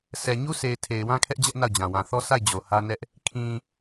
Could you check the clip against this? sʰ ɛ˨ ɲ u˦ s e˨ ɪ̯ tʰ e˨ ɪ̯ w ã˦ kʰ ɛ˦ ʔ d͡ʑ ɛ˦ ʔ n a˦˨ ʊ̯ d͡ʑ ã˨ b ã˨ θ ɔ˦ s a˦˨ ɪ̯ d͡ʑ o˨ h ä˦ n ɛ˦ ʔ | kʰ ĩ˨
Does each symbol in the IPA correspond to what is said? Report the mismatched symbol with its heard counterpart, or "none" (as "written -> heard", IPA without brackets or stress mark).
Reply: b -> w